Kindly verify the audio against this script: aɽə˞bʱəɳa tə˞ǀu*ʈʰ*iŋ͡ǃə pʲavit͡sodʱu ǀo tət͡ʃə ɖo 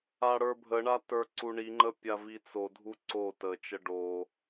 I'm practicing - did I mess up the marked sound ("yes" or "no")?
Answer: yes